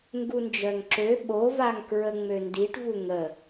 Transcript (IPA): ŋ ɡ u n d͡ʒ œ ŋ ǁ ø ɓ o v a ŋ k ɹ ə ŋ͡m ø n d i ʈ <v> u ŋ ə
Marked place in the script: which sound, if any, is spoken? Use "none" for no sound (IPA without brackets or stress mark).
v